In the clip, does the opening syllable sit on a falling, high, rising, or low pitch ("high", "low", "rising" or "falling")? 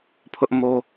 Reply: high